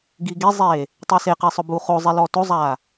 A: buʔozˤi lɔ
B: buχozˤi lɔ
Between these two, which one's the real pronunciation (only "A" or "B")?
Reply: B